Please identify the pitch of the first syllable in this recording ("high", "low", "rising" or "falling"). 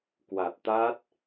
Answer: low